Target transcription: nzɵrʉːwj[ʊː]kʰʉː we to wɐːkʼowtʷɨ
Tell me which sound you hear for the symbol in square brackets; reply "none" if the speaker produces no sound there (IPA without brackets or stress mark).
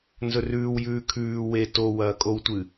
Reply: ʉː